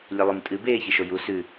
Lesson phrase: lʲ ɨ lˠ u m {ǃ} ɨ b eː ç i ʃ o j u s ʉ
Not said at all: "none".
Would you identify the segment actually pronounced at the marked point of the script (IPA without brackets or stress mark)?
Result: tʼ